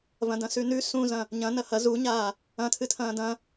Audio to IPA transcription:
v ɐ̃ d ɐ̃ s ʉ n ʉ s ũ z ɐ̃ | ɲ ɐ̃ n ɐ h ɐ z u ɲ aː | ɐ̃ tʰ ɨ tʰ ɐ̃ː d ɐ̃

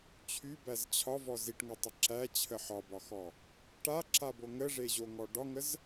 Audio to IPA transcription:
t͡ɕʰ y b æ z t͡ɕʰ ɒ v ɔ z i ʈ ŋ ɤ tˤ ə ǁ æ t͡ɕʰ ə ħ ɒ b ɒ x ɔ | ʈ a ǁ a b o ŋ ə ʐ e ʑ o ŋ ɔ ɖ ɒ ŋ ə z

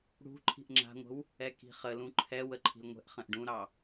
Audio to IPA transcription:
ɽ ṳ ǃʰ i̤ ʔ ŋ͡ǁ a̤ ŋʷ ə̤ w | ɛ k i̤ χ ə l ũ ǃʰ ɛ w ə ǃʰ i̤ l ŋʷ ɛ̤ ʔ χ ə̃ ʔ ɖ ũ ɾ ɑ

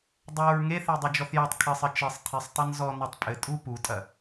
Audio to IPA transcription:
dˤ o ɹ ŋ e θ e dˤ ɐ d͡ʒ ɔ θ j ɐ tˤ kʰ ɘ sˤ ɘ t͡ʃ ɘ sˤ tʰ i sˤ tˤ ɐ n z ɔ n ɔ tˤ pʼ ɘ tʼ u p u tʼ ɐ

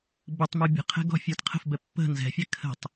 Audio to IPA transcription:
b ə tˤ m u bʲ ə̤ qʰ ɛ̤ ɡ ɔ̤ fʲ ə˞ t qʰ ə̤ f b ɛ pː ə̤ n z ɛ̤ fʲ ɛ kʰ ə̤ tˤ

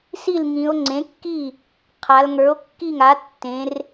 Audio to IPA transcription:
s i˥˩ l ŋ ĩ˩˧ o̯ ŋ͡ǀ ẽ˩˥ kː i˥˩ | qʰ a˩˧ l ŋ ə˞˩˥ o̯ kː i˥˩ ŋ a˩˥ tː ẽ˩˧ r

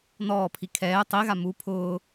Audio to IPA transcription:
n ɔː pʰ i kʰ ɛː tˤ i ɣ a m u pʰ ʊː

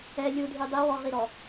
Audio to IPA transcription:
ɛ lʲ u dʱ y dˤ i w ɔ ʁ i ɾ ɔ

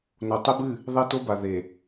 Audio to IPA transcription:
n o˨ tˤ e˦ b ɨ˦˨ | ðˤ e˦ t o˦ b a˨ ð e˨

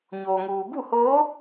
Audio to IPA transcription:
ɲ oː˩ ŋ uː˩ b u˥˨ h oː˧˥

